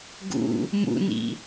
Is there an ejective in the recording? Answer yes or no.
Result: no